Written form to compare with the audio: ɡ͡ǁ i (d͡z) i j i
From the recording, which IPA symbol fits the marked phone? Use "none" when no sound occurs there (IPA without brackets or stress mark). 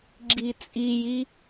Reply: t͡sʼ